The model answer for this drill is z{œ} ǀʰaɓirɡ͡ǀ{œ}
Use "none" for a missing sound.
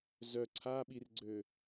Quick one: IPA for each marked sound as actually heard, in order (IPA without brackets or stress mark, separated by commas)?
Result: œ, ø